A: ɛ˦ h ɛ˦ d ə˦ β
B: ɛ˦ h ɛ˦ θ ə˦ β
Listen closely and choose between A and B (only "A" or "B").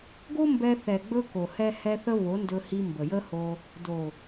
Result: B